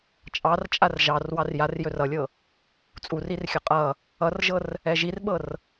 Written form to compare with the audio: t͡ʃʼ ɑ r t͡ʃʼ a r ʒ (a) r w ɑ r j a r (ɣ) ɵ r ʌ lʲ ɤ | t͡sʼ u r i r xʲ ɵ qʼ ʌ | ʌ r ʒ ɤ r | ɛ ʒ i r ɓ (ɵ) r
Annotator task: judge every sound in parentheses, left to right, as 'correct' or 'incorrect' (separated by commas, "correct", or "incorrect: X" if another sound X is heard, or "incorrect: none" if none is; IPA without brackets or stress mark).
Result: incorrect: ɑ, incorrect: j, incorrect: ɤ